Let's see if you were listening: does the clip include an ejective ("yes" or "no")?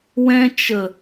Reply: no